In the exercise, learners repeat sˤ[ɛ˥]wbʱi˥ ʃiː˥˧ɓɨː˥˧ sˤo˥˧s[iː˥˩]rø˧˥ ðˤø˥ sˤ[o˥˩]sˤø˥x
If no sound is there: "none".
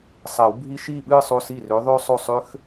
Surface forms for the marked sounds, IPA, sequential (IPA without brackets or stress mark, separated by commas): ɛ˨˩˦, iː˥˩, o˥˩